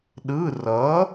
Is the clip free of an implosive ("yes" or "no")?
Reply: no